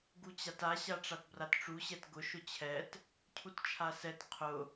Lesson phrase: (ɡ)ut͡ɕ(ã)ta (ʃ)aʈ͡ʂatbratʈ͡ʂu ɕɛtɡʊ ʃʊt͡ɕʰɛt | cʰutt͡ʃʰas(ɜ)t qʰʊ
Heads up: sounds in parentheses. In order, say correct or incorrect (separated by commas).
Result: correct, incorrect, incorrect, incorrect